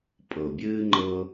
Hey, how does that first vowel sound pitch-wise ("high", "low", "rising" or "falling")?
low